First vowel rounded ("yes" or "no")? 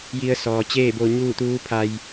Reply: no